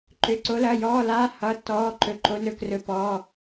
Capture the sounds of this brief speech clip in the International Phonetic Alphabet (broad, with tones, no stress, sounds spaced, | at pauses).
ǃ ʏː˩˧˩ ǀ o˨˦ l ɐː˩˧˩ j ɔː˩˧˩ l aː˨˦ h ʌː˩˧˩ tː ɔː˩˧˩ ǃ ɵ˨˦ ǃ o˨˦ n ɵ˨˦ k r ɵ˨˦ p ɔː˩˧˩